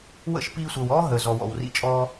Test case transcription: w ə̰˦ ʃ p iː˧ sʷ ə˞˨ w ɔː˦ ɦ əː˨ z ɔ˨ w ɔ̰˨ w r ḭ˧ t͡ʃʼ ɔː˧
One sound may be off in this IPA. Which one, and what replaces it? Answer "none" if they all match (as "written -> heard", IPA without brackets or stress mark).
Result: none